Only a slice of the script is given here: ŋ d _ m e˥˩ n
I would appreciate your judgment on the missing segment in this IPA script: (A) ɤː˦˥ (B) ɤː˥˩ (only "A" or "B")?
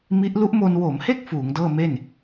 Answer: B